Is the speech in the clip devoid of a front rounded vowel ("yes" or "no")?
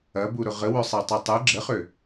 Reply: no